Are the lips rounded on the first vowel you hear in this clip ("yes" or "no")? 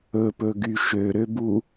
yes